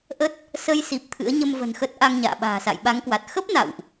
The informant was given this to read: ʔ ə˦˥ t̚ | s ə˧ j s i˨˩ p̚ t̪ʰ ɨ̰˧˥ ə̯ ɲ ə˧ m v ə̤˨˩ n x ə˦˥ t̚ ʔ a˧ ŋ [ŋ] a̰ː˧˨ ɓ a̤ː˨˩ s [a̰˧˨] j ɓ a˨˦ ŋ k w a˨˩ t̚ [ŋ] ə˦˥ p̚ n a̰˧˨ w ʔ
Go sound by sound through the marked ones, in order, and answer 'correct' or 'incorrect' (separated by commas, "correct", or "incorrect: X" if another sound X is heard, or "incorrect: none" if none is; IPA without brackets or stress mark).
incorrect: ɲ, correct, incorrect: x